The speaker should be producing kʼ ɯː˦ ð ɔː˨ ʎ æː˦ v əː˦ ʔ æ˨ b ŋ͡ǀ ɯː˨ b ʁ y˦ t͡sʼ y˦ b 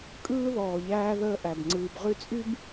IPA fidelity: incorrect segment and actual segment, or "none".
v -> ð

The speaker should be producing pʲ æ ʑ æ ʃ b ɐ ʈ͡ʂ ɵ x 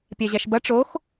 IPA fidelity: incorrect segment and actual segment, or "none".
ɵ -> o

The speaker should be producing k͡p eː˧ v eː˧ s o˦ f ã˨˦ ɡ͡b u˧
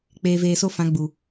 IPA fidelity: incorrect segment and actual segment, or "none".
u˧ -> u˨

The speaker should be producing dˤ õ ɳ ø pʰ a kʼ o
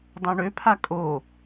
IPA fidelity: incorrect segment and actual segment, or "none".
none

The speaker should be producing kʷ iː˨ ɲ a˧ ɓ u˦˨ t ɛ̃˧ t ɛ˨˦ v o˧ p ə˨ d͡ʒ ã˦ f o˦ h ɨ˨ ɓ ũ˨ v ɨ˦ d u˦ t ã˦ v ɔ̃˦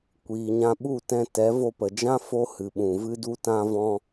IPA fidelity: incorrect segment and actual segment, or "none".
a˧ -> ã˧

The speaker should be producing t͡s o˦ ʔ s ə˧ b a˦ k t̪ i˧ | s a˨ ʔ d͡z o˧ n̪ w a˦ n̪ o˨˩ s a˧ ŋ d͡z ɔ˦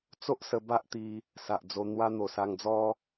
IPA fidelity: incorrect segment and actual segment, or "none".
k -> ʔ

